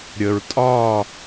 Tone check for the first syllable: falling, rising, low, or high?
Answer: low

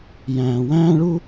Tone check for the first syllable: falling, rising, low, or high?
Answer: low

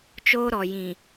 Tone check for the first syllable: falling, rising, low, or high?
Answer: high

